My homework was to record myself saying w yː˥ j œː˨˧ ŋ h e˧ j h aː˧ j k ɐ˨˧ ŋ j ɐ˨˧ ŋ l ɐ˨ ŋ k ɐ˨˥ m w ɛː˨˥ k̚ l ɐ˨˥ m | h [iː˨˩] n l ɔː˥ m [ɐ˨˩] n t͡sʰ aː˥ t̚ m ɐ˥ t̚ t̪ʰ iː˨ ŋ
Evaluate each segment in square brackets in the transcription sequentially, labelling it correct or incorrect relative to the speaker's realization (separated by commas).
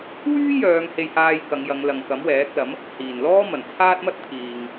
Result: correct, correct